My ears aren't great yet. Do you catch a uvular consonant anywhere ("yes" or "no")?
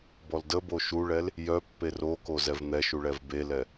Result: no